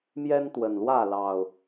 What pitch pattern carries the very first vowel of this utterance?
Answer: high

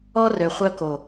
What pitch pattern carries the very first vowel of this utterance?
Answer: high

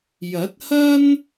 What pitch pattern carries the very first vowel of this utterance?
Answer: rising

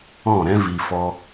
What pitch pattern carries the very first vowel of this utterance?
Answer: falling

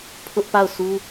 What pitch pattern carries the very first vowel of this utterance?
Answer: high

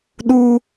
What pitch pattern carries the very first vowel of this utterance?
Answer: high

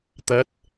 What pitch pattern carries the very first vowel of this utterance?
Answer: rising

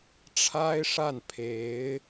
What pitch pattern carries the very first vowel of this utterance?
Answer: high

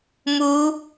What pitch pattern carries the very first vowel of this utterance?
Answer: rising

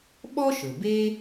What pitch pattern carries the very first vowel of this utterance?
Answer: high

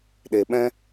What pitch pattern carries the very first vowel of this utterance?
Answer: low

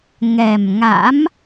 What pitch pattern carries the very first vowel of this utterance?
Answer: low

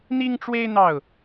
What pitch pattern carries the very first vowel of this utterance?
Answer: high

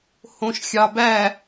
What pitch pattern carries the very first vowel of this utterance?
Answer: low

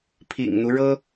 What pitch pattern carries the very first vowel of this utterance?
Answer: low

